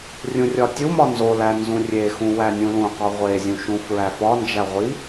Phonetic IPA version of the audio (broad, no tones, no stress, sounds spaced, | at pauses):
rʲ ũ rʲ ɒ tʲ u m ɒ n z o l æ n z ũ rʲ e x ũ w æ nʲ ũ l ũ q ɒ ʁʷ e zʲ ũ ʃ ũ f ɹ æ f ɒ n d͡ʒ æ ʁʷ i